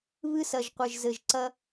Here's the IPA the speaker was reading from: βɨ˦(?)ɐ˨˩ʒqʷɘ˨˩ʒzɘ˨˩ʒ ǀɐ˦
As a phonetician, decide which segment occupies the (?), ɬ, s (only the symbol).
s